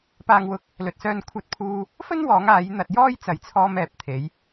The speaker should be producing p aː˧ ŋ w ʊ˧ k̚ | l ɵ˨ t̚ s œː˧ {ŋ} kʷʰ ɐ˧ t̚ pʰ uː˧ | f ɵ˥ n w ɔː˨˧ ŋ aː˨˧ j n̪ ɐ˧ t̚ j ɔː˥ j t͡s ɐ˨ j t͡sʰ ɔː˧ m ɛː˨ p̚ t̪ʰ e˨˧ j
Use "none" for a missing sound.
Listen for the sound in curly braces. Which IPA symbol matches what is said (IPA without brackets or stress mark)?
n